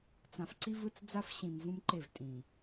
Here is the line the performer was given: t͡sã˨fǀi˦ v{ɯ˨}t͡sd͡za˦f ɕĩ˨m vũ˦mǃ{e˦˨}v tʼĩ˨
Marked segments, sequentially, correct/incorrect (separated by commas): incorrect, correct